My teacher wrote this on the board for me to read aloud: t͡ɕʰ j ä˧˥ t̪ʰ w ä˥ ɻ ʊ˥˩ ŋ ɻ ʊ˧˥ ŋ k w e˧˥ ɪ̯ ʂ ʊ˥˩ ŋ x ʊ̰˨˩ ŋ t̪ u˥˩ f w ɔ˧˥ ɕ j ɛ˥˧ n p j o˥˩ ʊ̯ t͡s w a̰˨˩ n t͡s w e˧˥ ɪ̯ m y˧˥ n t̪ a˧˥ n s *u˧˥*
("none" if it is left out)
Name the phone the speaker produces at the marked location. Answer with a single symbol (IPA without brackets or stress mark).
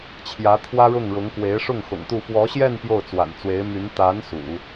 ṵ˨˩˦